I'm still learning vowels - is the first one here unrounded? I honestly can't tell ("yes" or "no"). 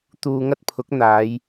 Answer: no